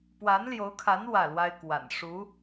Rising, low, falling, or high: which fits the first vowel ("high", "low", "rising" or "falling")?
rising